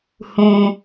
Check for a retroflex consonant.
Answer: absent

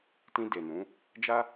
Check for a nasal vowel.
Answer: present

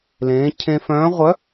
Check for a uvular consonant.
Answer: present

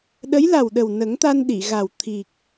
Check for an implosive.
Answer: present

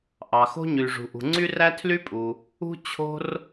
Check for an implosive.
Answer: absent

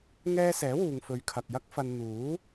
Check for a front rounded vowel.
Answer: absent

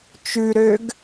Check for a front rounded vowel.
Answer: present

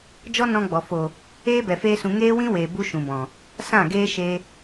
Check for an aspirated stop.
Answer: absent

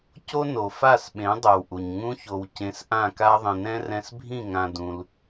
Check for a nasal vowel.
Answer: present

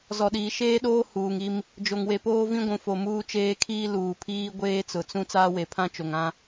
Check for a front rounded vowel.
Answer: absent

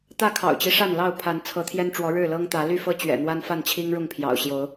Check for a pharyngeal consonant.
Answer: absent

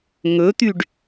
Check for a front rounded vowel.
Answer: present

